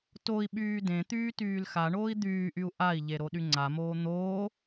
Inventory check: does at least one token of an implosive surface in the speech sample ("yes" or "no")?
yes